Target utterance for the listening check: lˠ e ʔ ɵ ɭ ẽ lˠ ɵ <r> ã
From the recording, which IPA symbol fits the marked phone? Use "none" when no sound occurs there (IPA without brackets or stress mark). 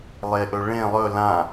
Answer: l